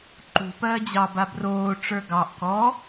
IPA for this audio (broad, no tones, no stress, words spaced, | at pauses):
ǃṳpɜː d͡ʑɑba broːʈ͡ʂə˞ ɡɑʔ kɔ